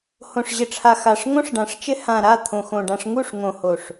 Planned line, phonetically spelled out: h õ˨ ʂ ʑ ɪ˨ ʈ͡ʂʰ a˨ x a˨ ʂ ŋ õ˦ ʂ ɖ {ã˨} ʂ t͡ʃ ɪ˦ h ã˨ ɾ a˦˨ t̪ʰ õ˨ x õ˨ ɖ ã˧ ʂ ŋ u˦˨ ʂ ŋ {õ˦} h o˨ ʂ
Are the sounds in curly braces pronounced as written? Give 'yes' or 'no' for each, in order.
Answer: yes, no

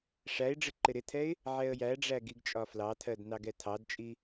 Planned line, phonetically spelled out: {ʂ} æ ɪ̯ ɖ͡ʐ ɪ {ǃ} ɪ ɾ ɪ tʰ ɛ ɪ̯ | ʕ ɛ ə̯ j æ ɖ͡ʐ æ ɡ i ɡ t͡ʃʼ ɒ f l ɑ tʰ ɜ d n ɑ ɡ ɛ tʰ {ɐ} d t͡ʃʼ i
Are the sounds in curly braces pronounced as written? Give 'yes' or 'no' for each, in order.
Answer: yes, yes, no

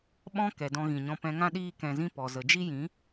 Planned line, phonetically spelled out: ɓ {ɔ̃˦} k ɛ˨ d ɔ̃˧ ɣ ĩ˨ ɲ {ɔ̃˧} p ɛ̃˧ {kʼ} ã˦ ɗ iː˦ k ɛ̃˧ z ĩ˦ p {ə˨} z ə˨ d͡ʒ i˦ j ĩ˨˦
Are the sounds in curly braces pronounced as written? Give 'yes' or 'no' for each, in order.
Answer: yes, yes, no, no

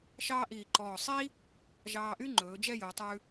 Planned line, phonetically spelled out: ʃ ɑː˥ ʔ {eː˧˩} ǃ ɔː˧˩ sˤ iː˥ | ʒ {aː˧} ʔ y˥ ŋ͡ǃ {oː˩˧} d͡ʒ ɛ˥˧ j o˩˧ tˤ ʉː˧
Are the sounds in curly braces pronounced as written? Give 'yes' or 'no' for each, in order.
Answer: no, no, no

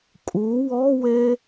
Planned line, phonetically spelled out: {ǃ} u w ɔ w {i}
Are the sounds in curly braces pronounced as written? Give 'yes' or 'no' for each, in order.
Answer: no, no

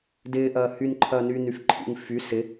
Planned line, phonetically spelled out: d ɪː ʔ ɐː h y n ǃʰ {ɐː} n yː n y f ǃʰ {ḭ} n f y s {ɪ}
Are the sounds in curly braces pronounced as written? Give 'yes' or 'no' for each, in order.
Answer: yes, yes, yes

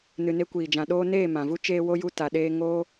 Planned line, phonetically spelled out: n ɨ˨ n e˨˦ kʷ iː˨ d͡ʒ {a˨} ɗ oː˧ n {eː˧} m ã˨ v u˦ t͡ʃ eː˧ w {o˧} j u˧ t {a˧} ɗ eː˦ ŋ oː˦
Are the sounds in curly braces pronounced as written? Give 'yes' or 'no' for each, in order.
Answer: no, no, yes, yes

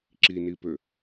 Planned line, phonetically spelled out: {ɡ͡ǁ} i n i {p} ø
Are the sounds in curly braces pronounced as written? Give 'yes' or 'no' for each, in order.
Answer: no, yes

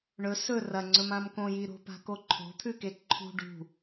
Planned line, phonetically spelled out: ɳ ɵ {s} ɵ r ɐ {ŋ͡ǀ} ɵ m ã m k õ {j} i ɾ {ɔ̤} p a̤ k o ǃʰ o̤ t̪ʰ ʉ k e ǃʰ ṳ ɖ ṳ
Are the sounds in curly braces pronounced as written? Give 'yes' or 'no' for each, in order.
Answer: yes, yes, yes, no

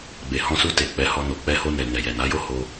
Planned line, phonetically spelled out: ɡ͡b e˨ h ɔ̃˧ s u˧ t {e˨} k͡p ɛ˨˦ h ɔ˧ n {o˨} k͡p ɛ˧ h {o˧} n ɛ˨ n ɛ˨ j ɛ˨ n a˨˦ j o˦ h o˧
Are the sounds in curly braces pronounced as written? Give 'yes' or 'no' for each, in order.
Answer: yes, yes, yes

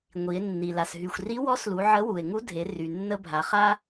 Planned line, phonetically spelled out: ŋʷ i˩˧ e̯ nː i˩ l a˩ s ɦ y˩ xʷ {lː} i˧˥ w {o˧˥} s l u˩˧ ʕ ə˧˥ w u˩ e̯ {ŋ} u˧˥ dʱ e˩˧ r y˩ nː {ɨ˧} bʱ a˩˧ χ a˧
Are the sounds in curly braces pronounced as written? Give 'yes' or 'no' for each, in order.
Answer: no, no, yes, no

